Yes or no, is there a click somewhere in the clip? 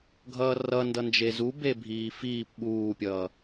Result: no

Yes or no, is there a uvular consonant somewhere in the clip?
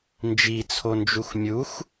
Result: no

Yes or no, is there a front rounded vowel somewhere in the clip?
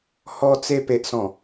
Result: no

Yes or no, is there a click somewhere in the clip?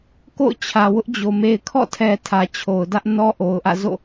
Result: no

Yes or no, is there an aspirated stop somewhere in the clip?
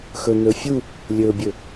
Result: no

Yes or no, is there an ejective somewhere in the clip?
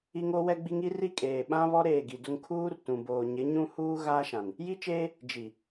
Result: yes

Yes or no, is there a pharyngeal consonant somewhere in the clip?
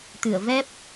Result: no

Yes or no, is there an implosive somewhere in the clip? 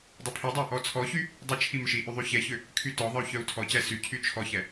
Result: no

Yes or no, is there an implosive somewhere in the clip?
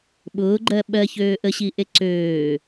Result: yes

